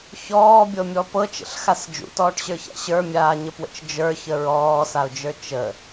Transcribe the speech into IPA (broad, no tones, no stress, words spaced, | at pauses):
çɔːbʲɤmʲɔ pɤt͡ʃə̰ɬxas d͡ʒṵtɔːʈɕə˞ça̰ ɕə˞mʲaːɲəpwə̰t͡ʃ d͡ʒə˞çə ɹɔːsaʊ̯d͡ʒə˞ t͡ʃə